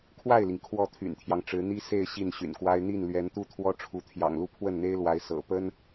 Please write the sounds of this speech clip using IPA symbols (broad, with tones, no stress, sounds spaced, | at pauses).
kʰ w a˥˩ ɪ̯ l i˩ ŋ kʰ w ɔ˥˩ t̪ʰ y̰˨˩ n t̪ʰ j ɑ˦ ŋ ʈ͡ʂ ɻ̩˧˥ n̪ i˥ s e˥˧ ɪ̯ ɕ i˥˩ n ɕ y̰˨˩ n k w a˥ ɪ̯ n̪ i˥˩ n l ɥ ɛ˧˥ n t̪ u˥ t̪ʰ w ɔ˥ ʈ͡ʂʰ u˧˥ t̪ʰ j ɑ̰˨˩ ŋ l u˥˧ pʰ w ə˥˩ n n̪ e˥ ɪ̯ l w a˧˥ ɪ̯ s ɤ̰˨˩ p ə˥ n